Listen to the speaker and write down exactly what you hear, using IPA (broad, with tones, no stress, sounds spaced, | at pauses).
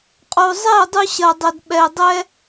qʼ o˨ zˤ e˦˨ ə̯ dˤ u˧ ɕ ɐ˨ dˤ ɘ˨ d ɓ ɛ˨ ɪ̯ dˤ ɛ˦